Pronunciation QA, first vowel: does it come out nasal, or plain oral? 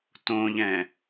nasal